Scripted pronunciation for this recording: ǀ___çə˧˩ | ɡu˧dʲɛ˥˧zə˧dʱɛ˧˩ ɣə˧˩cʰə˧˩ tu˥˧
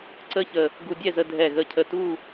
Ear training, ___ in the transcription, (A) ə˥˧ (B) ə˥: A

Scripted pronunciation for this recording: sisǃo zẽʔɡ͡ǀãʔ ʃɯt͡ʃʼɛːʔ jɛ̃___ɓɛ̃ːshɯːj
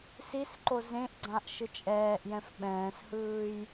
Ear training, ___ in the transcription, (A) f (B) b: A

